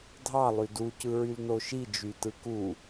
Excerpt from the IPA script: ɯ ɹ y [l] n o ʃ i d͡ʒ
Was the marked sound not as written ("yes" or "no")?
no